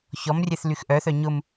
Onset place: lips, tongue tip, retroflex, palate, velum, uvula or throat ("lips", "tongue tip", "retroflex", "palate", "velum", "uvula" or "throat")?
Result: palate